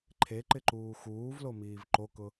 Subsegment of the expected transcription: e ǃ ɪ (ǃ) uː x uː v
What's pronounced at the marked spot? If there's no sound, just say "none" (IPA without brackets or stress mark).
ǃ